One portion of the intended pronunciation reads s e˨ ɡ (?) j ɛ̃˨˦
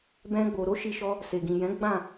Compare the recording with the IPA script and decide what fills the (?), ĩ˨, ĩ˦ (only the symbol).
ĩ˨